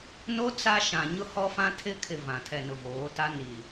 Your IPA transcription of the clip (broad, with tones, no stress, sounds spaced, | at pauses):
n o˦ t͡s a˦ ʃ ã˨ ɲ ʊ˦ h ɔ˦ f ã˦ tʰ ɪ˦ kʰ ɪ˨ v ã˨ tʰ ɛ˨ n ʊ˨ v oː˨˦ t a˦ n i˨